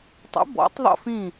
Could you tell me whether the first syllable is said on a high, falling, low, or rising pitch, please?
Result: rising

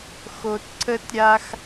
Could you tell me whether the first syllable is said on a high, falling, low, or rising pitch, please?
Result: low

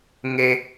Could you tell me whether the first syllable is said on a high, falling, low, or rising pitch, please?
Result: high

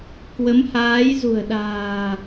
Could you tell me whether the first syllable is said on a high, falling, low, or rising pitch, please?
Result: rising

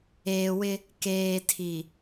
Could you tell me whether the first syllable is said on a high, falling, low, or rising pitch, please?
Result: low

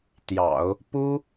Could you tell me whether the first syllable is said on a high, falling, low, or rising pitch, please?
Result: low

